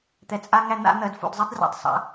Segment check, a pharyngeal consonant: absent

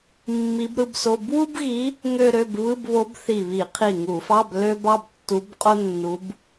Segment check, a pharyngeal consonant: absent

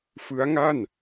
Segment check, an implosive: absent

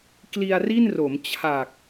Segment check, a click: absent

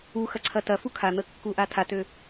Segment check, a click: present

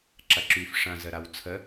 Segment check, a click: present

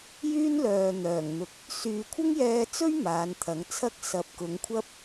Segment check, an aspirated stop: present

